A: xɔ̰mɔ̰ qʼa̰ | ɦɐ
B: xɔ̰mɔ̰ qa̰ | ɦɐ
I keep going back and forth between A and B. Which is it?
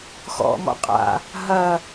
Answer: A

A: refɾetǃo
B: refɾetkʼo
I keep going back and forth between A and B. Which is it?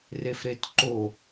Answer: A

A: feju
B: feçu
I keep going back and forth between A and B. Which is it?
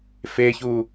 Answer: B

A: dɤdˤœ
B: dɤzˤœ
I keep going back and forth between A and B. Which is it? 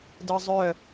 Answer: B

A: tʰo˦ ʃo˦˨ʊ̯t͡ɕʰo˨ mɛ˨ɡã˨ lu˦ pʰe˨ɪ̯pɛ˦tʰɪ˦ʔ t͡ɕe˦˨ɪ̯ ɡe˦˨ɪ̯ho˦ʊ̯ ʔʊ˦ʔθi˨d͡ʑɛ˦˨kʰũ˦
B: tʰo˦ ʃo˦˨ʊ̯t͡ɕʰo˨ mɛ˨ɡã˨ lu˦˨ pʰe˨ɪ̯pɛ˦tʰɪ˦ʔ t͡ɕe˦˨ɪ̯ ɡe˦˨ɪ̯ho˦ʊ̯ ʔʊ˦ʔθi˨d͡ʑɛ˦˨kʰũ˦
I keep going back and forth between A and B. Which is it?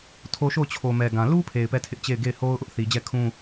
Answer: A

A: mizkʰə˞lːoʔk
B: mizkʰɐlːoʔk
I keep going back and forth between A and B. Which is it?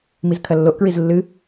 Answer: B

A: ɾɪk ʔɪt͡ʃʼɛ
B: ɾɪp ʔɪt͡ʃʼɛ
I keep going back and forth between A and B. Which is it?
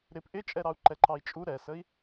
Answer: B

